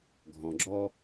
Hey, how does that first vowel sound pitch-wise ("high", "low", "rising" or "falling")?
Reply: low